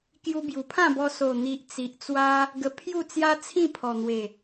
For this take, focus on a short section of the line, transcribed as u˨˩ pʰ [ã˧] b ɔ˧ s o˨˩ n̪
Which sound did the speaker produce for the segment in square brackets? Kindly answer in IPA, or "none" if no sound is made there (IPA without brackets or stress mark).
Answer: ã˥˧